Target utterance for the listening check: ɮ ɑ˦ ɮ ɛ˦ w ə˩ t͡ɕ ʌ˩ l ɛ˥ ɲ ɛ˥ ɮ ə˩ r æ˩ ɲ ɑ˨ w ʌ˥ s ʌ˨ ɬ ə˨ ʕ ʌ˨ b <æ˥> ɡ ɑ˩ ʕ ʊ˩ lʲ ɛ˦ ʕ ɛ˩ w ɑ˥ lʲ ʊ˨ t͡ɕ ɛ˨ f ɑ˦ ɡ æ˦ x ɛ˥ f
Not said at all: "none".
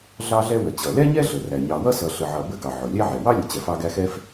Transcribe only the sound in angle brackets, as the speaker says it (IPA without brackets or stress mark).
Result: ə˥